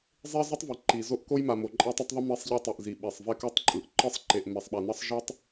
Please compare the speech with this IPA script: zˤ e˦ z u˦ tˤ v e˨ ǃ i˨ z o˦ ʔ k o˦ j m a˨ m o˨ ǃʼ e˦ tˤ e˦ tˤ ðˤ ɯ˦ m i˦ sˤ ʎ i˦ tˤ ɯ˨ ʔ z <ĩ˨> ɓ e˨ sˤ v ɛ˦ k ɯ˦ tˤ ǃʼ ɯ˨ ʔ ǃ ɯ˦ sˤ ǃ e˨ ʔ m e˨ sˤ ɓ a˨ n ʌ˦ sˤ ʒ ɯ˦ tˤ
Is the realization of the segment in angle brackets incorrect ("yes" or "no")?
yes